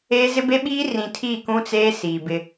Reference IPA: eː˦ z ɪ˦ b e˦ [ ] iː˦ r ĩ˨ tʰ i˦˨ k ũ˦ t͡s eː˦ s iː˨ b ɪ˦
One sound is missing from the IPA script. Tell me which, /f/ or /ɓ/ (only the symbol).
ɓ